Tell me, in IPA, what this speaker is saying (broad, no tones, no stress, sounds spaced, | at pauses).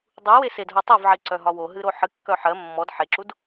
dˤ u w e s e d ɦ o tˤ o v ʕ i ǀ œ ɦ ɒ w o ɦ ɨ ɾ o ħ ɨ kː œ ħ ɜ mː ɔ d ħ e ǁ u d